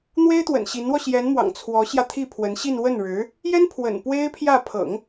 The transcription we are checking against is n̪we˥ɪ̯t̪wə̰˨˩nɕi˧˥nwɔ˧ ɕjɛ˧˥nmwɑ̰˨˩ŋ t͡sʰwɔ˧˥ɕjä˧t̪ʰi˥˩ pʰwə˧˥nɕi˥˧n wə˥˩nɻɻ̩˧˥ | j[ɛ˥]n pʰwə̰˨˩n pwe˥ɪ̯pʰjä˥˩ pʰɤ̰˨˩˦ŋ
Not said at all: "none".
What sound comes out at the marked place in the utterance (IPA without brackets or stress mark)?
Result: ɛ˥